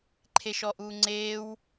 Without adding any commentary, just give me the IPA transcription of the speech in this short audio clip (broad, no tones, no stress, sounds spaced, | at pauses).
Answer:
ǃʰ e ʃ ɔ ʔ uː ŋ͡ǀ eː w